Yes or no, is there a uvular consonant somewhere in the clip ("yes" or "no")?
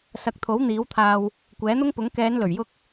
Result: no